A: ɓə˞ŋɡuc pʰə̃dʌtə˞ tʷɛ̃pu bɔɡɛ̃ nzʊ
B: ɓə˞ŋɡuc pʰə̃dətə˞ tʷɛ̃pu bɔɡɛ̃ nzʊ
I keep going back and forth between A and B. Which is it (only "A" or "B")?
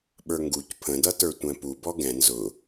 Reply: A